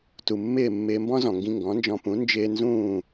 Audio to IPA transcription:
t u˩ mː ɪː˥˩ mː ɪː˧ m b ɔ̃˥ z ɔ̃˩ ŋ ɡ ĩ˧ ŋ ɡ ɔ̃˩˥ n d͡ʒ ɔ̃˧ p ũ˩˥ n d͡ʒ ɪː˧ n z ũː˥˩

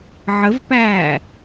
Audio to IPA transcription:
ʕ ə v p æː

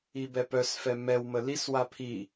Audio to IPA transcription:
i b ɛ p œ s f ɛ m ɛ w m ə l i s w a pʰ i

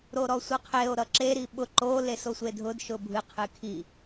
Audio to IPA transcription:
ɾ o ɾ ɔ sʷ ɨ qʰ e o̯ ɾ ʌ ǁ e ɾ i ɓ ʊ ǃ o l e s o sʷ e dʱ ʊ d ʃ ʊ bʱ ɨ qʰ ɨ kʰ i

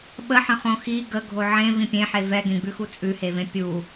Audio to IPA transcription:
ɓ ə ħ ə̃ χ õ x i ɡ ə ɡʱ o ʕ ẽ v ĩ pʲ ẽ ħ e v ɛ ɡ ẽ ɡ͡b ʉ x u t͡sʼ ʉ h e v ẽ pʲ u

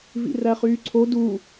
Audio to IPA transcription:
v ḭ r æ χ yː ǀʰ o d u

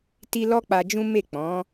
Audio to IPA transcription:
t i˧ l ɔ˦ k͡p a˧ d͡ʒ ũ˦ m e˦˨ k͡p ɔ̃˨˦

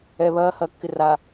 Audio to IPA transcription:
ɛ β ɐː h ɐː kː ɪ r a

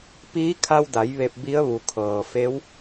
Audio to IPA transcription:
p iː˧˥ kʰ a˧ w d a˩˧ j ʋ e˧˩ p̚ b i˧˥ ə̯ ʋ u˩ kʰ ɤː˩ f e˧˥ w

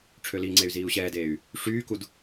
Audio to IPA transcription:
ʈ͡ʂʰ ø l i ŋ͡ǀ e y̯ z iː u̯ ɕ ɛː d eː y̯ | ʂ yː k u d

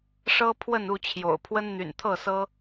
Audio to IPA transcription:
ʂ ɤ˦ pʰ w ə˥˨ n u˥˨ t͡ɕʰ j o̰˨˩ ʊ̯ pʰ w ə˦ n n̪ y̰˨˩ n t̪ʰ ɤ˥˨ s ɤ˦

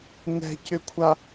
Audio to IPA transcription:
n ɛ̤ c ʏ kʷʰ a

